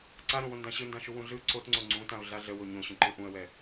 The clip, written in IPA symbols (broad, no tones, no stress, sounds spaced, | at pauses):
ǀ a ɾ õ w õ n d ã ɕ ɯ n d ã ʃ u w ũ ɮ ɯ ǀ o t ŋ͡ǀ o ŋ͡ǀ ũ t ã ʊ̯ ɮ a ɮ ə w o ɲ õ ɕ ũ ǃ ɯ ʔ ũ ə̯ w ɛ